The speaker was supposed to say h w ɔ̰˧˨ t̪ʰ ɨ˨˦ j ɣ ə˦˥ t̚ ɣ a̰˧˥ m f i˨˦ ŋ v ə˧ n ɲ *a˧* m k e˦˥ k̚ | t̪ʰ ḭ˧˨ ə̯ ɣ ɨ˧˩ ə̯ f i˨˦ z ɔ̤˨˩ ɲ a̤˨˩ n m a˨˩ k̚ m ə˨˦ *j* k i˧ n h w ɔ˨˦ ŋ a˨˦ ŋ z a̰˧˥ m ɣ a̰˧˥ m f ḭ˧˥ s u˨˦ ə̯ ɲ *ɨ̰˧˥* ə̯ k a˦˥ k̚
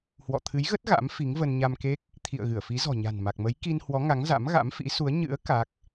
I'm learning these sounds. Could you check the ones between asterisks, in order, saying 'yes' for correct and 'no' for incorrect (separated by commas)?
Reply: yes, yes, yes